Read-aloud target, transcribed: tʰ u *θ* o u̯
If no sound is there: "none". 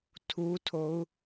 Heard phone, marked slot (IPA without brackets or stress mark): tʰ